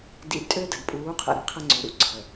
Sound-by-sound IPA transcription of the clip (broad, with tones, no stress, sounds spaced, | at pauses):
d ḭ˨ d tʼ ø˦ d ə˨ d pʼ uː˨˦ qʰ ə̰˨ ɾ i˨ qʰ ə˦ ŋ͡ǀ ø˨ ɾ ṵ˦ ǀʰ ə˨